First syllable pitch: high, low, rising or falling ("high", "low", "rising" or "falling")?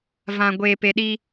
low